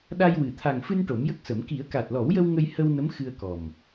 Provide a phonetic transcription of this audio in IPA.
ɗ a˧ j w ɨ˨˩ t̪ʰ a˨˩ ŋ f ɨ˧ n ʈ o˨˩˦ m j ə˦˥ k̚ s ə˨˩˦ m k i˨˩˦ ə̯ k a˨˩ t̚ l ɔ˨˩˦ w j ə˧ w ŋ ə˧ j h ə˧ w n ə˧˥ m x ɨ˧ ə̯ k ɔ˨˩ m

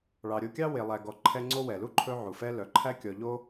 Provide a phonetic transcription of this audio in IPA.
ɭ ɑ˨ ɾʲ o˦ kʲ ɑ˥ w e˨ lˠ æ˨ ɡ ɔ˨ ǃʰ ɛ˦ ŋ͡ǀ o˥ w ɛ˩ l u˥ ǃʰ ɵ˥ ʕ u˩ f ɛ˥ l œ˩ ǃʰ æ˥ kʲ ɔ˨ ʎ o˥

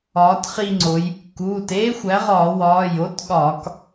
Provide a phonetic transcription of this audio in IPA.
ɒː˩˥ t χ i˦˨ ŋ͡ǀ o˩˧ j | k uː˩˧˩ t eː˦˥ xʷ æ˩˥ ʁ ɒː˧˩˧ w ɒː˩˧˩ j o˦˥ t ɠ ɒ˧˩˧ k

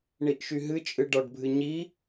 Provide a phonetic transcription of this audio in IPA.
ɳ i ʔ ʃ y ɦ ɨ t͡ʃʼ ɨ ɖ ɒ ɖ bʱ ɨ ɲ i

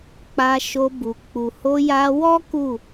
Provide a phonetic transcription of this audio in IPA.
k͡p a˧ ʃ o˧ b u˨ k͡p u˨ h o˧ j a˧ w ɔ˦ k u˦˨

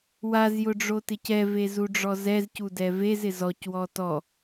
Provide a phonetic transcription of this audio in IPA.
w a z j ʊ ɖ͡ʐ o t ɪ c ɛ v e z u ɖ͡ʐ ɔ z ɛ z c u d ɛ v e z ɪ z ɔ c w ɔ t ɔ

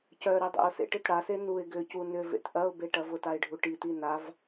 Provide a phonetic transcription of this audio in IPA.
c œ ɾ i dˤ ḛ ʊ̯ s ḛ ʈ ɪ t ɽ a s e n u ɪ̯ ɡ ʏ c u n ʏ v ḛ t ʔ ɐ ʊ̯ b e ʈ ɐ v ʊ t a ɪ̯ ɖʱ u ʈ i t i n a v

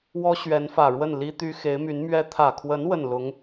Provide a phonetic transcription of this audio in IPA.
w ɔ˥ ɕ ɥ ɛ˧˥ n f ä˨˩ ɻ w ə˥˩ n l i˥ t̪ y˥ x e˧˥ ɪ̯ m y˧˥ n m ɥ ɛ˥ t̪ʰ ä˨˩ kʰ w ə˧˥ n w ə˥˩ n l ʊ˧˥ ŋ

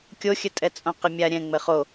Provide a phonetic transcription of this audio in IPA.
kʲ o xʲ ɘ tʼ ɛ t͡sʼ õ q ɪ mʲ a ɾʲ ɛ̃ ŋ͡m ɘ χ o

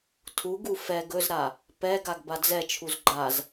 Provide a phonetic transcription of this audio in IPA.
tʰ u ɡ u f ɛ ɡ ɵ z ɾ a | p ɛ ɡ a ɡ b a d͡z ɛ t͡ʃʰ u z ɡ͡ǃ a z

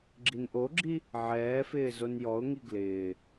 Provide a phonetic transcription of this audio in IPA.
ɡ͡ǁ i n ʔ o ɡ͡ǁ i | ʕ ɛː f ɪː z o n j ɔ ʊ̯ ŋ i ɡ l ɪː

